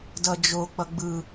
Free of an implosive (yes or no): yes